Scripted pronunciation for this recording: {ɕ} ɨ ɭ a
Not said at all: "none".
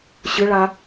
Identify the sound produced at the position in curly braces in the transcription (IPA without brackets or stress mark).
ɕ